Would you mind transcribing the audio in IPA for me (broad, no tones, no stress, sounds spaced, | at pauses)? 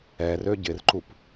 ɛ r ø ɟ ɪ r ǃ u p